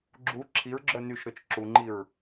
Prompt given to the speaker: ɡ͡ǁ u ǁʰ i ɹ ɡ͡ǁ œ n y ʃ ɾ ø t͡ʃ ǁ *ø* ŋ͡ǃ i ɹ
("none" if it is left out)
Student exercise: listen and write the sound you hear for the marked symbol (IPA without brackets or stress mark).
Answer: u